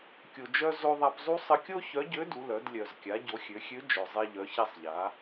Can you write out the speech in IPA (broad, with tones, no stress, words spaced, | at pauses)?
kʲo˩d͡ʒœ˧ zo˧ðˤa˧p zˤu˥ sˤə˧kʲo˥ çœ˧˥ɟø˧˥du˩˧lœ˩˧d lʲœ˩zkʲa˩˧ ɟo˩˧xʲø˩˧xʲø˧˥ d͡ʒœ˩zˤɛ˧ʎœ˩˧ ça˧sˤʎa˩˧